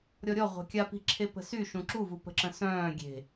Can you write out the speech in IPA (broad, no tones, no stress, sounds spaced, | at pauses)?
ɾʲ ɔ ɾʲ ɔ ʁʷ e̤ kʲ a p i̤ ǁʰ e p ə̤ s y ʃ ũ ǁ u v u p ə̤ ǁ ə̃ s œ̃ː ɡʲ e̤